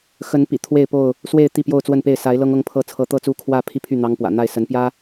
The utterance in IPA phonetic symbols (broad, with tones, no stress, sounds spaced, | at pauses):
x ə˨˦ n p ḭ˨˩ t̪ʰ w e˥˨ ɪ̯ p o˥˨ ʊ̯ | s w e˥˨ ɪ̯ t̪ i˥˨ p j o˥˨ ʊ̯ t͡s w ə˥˨ n p e˥˨ ɪ̯ s a˨˦ ɪ̯ l ɤ˦ ŋ ɤ˦ ŋ pʰ ɤ˥˨ t͡sʰ ɤ˨˦ t̪ ɤ˦ t͡s u˦ kʰ w ä˥˨ pʰ i˥˨ pʰ y˥˨ n̪ ɑ˦ ŋ p w ä̰˨˩ n̪ a˥˨ ɪ̯ s ə˨˦ n p j ä˦